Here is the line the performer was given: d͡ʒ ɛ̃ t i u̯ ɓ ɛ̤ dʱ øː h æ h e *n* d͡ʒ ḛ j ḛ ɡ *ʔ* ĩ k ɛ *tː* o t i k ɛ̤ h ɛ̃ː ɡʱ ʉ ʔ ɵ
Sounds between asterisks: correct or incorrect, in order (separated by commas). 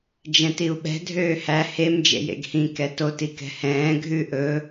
incorrect, incorrect, incorrect